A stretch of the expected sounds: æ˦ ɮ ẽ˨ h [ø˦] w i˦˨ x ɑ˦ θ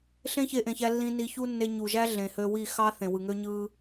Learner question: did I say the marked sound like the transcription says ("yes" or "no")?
no